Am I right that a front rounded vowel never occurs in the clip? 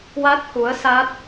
yes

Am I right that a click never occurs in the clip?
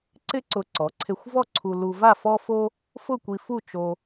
no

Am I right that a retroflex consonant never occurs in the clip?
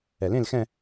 yes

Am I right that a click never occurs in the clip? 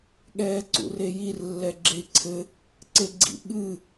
no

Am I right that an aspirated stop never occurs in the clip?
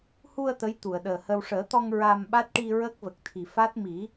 no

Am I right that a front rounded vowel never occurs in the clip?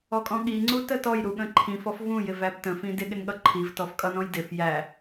yes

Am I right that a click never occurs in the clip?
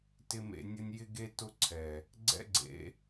no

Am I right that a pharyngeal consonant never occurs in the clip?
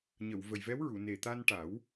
yes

